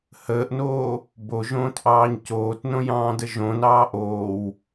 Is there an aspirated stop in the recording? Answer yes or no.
no